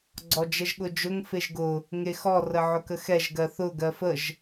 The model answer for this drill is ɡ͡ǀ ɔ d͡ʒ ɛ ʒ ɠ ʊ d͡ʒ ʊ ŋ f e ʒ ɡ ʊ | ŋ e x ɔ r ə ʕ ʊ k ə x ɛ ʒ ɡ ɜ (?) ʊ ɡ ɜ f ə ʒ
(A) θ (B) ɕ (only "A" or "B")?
A